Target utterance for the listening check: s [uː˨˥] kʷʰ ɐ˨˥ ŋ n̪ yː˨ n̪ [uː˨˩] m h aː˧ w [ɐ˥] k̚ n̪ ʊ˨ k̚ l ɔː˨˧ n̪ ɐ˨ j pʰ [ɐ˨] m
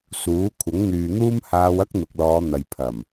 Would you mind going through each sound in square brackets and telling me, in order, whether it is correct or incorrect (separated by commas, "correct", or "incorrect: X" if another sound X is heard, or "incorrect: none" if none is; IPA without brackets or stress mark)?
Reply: correct, incorrect: uː˥, correct, incorrect: ɐ˨˩